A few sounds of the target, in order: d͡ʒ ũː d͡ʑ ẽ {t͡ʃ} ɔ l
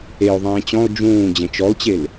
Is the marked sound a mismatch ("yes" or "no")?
no